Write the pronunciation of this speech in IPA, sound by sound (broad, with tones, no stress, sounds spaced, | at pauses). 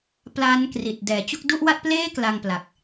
p l aː˦˥ n k r i˨˩ t̚ d ɛː˩˦ t͡ɕ u˥˩ k̚ d u˥˩ ʔ w a˥˩ t̚ p l eː˥˩ k l a˧ ŋ p l a˨˩ k̚